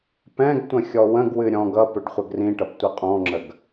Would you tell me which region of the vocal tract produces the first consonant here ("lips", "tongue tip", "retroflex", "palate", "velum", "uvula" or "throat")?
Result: lips